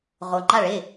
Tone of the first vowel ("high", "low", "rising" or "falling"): low